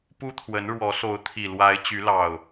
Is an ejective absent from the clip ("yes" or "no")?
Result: yes